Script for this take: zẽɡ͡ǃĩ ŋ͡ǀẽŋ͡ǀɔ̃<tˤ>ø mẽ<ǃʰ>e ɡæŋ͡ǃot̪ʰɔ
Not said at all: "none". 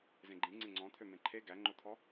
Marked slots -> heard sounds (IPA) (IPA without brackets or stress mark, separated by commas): t̪ʰ, ǃʰ